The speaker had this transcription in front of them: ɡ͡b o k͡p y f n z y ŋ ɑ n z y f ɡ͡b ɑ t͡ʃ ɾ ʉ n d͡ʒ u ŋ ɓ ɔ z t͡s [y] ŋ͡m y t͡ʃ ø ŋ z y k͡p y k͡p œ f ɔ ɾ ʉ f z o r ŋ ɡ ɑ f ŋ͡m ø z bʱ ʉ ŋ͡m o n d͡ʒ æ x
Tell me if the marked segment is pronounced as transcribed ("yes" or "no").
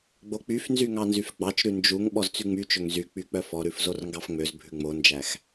yes